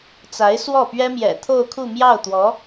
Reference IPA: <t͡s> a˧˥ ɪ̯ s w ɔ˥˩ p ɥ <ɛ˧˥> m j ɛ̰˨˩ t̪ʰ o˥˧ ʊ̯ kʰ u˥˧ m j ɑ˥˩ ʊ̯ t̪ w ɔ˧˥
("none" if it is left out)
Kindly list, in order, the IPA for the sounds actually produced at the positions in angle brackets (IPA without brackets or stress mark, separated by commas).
t͡s, ɛ˥